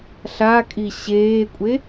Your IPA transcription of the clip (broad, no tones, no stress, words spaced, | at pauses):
ɬakʼi ɕeːkʷʼe